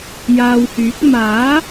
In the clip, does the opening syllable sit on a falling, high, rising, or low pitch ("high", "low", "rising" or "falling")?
low